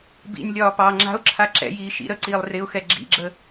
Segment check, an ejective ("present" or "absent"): absent